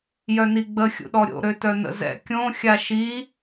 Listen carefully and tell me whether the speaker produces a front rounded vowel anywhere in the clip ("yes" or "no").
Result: yes